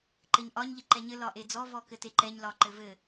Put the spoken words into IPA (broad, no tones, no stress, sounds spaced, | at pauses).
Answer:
ǃ ɘ ɲ ʔ ɒ ɲ ʎ ɘ ǃ ɛ ɲ ɘ l ɒ ʔ e d͡z ɔ v ɔ k ɘ t e ǃ ɛ ɲ l ɒ ǃ ɘ v ɘ